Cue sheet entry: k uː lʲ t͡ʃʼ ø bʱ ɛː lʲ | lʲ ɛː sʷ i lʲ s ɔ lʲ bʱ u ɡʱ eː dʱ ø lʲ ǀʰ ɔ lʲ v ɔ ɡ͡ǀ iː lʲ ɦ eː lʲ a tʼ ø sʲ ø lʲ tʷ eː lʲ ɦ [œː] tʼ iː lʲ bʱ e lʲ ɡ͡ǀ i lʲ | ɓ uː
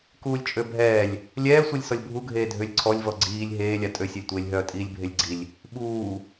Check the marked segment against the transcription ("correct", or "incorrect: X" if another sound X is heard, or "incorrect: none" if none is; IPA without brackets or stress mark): correct